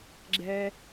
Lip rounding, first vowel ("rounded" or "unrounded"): unrounded